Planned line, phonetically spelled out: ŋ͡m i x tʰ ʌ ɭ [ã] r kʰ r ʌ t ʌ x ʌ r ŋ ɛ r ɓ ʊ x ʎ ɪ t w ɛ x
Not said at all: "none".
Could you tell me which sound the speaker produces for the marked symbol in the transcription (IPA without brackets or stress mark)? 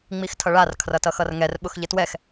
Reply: a